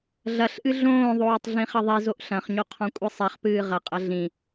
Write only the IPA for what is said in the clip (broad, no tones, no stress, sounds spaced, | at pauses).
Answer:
ɮ ɐ ɬ ʔ ɨ ɮ õː ðˤ oː tˤ ɮ ĩ χ ɐ ðˤ i z o ʔ ɬ ɐ̃ χ ɲ o qʰ ɔ̃ kʷʼ ɨ sˤ ɛ χ p ɨː ʁ ɐ qʼ ɐ ɮ ĩ